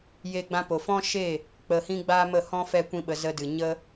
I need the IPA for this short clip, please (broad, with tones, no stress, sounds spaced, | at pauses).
j e˧ ɡ͡b ã˧ p o˨ f ɔ̃˦ ʃ e˦˨ | k͡p ə˧ h ĩ˦ ɡ͡b aː˦ m ə˦˨ h ɔ̃˦ f ɛ˦ kʷ ĩ˦ ɓ ə˧ z ə˧ d ɨ˨ ɲ ə˦